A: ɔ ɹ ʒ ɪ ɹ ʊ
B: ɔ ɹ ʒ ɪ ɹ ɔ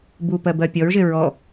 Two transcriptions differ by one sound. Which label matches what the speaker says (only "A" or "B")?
B